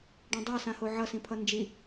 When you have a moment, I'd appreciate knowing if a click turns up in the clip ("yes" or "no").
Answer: no